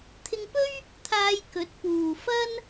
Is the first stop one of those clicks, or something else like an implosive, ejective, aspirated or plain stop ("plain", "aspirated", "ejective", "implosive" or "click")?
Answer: aspirated